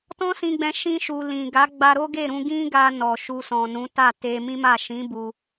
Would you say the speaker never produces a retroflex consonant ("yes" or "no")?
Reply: yes